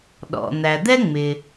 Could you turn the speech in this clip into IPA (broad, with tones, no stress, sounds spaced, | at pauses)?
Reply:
ɗ ɔ̰˩ n̪ æ˩ d̪ ɛ˥ ŋ͡m ɪ˩